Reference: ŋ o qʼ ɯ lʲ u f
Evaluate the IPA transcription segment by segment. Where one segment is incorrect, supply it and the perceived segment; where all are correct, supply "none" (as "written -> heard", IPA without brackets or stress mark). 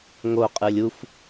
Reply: none